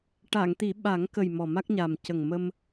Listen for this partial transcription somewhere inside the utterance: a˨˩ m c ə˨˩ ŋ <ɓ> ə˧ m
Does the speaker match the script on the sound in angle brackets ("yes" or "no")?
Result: no